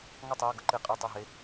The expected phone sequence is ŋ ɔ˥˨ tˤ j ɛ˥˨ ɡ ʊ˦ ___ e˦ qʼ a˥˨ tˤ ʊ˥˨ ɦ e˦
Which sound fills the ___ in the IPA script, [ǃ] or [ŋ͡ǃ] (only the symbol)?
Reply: ǃ